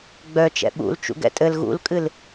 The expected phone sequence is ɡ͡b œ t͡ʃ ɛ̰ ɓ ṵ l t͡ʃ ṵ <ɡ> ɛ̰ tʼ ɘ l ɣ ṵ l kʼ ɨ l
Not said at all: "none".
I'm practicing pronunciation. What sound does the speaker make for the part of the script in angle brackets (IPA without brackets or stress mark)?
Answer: ɡ